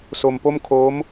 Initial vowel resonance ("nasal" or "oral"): oral